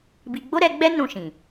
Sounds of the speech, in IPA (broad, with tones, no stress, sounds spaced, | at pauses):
b i˧ ɡ͡b o˦ ɾ ɛ˧ ɡ͡b ɛ˦ n ũ˦˨ ʃ ĩ˨